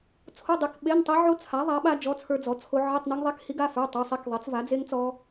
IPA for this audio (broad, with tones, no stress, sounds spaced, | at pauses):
t͡sʰ o˧˥˧ dˤ i˨˥ k ɓ e˧˥˧ n tˤ i˦˥ ʕ o˦˥ t͡sʰ a˨˥ ðˤ a˨˥ ɓ a˦˥ d͡ʒ ɔ˧˥˧ t͡sʰ ə˞˦˥ d͡z ɔ˨˥ t͡sʰ o˦˥ ʕ i˧˥˧ tˤ n e˦˥ ŋ ðˤ e˧˥˧ k h i˦˥ ɡ a˧˥˧ f ə˞˧˥˧ tˤ ə˞˧˥˧ sˤ e˦˥ k ðˤ e˨˥ t͡s v a˨˥ d͡z e˦˥ ŋ t͡s ɔ˦˥